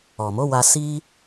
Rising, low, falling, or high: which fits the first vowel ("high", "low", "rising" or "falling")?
low